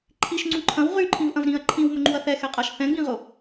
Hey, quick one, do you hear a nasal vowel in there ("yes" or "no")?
yes